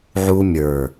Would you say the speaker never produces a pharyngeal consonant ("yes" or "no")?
no